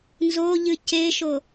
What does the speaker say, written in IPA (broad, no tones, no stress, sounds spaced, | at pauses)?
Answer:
n z o ʎ ɨ c e ʃ o